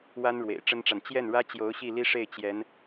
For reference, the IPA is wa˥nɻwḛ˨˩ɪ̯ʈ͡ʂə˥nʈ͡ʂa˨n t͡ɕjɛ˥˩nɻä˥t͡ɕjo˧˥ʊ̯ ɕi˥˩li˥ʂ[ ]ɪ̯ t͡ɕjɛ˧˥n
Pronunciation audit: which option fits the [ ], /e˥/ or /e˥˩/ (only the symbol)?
e˥˩